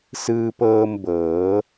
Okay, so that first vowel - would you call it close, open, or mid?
close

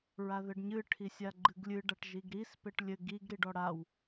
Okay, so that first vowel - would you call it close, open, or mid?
open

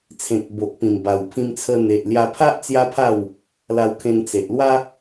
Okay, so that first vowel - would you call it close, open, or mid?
mid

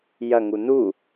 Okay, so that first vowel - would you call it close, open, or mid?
open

